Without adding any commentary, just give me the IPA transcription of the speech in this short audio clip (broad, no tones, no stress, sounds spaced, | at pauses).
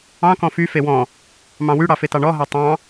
ɑ̃ k ɔ̃ f y f e w ɔ̃ | m ɑ̃ w y ɽ ɑ f e t ɑ ɳ ɔ ɦ ɑ tˤ ɑ̃